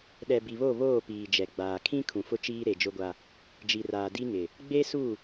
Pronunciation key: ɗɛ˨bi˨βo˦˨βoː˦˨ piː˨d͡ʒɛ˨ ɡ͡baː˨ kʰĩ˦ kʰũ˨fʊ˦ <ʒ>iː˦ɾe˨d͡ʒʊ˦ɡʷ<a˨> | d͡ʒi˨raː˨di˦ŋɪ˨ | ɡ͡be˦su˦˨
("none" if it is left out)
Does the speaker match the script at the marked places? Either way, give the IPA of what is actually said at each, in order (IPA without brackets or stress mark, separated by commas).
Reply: t͡ʃ, a˦